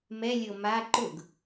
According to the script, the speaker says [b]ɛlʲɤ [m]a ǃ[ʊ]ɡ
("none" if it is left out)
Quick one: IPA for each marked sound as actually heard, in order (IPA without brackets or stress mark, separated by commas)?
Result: m, m, ʊ